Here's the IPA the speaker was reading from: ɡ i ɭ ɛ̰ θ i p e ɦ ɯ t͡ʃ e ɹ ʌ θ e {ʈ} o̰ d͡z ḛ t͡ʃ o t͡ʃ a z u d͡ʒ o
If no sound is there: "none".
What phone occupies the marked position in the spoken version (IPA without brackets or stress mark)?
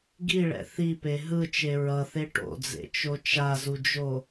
ʈ